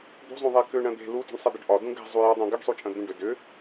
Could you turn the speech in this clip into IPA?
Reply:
d̪ṳzˤũðˤɛ kʏɳɐ̃ d̪e̤ lutṳɳsˤɛd̪ɐɖ ʔɒdũ ɡɛ̤ zˤujɒdˤũ ɡɐɖsˤut͡ʃʼɐ̃ d̪ũɖʏ dʏ

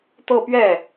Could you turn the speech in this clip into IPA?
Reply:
t̪ɤ˥˧pɥɛ˥˩

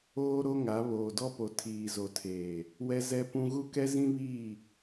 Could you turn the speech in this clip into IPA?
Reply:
oː˦ɾo˦ŋa˨˦ βoː˨dɔ˦po˨ tʰiː˨zo˨tʰeː˨ | wɛ˦zɛ˦pũ˦ ɣu˦kɛ˦zĩ˦βiː˦˨

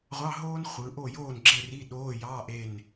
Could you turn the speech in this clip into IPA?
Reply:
ʁʷɑ˧˥˧ɦoː˥n χʷɯ˩˧ʔo˥˨ joː˥˨nɡ͡ǁe˥˨ri˧˥˧ ɗoː˧˥˧jɑː˧˥˧ʔ e˥˨n

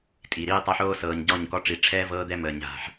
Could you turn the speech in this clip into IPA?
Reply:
tʼi˨ɾiː˦tˤa˦ħoː˦ sɤː˨ɲɟɔ˦˨ɲkɔ˦ ʈ͡ʂi˨ʈ͡ʂʰɛː˦ vɤː˦d̪ɛ˦məː˨ɲ ɦa̤˦ħ

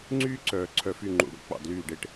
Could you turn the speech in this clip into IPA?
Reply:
ŋ͡ǀyː˦ǀœː˨ ǀʰœ˨fy˨ ŋ͡ǃṵ˨ɽṵ˦ k͡pɑ̰˨dlyː˦˨ɖe˦ʈ

